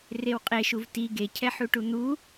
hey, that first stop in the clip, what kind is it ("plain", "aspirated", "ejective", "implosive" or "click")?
ejective